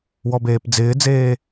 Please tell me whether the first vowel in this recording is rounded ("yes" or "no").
yes